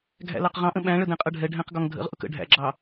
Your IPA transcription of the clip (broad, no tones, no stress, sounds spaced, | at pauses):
ɡʱ æ̰ l ɑ q ʁ ɑ̃ ʔ ə̃ ɓ æ̃ ɭ ə d ɛ̃ qʼ ʌ ɖʱ ɛ ɖʱ æ̃ q ɡ ɒ ŋ dʱ ə̰ ʁ ʔ ʊ k ə̰ ɖʱ æ̰ ɡ͡ǁ ɑ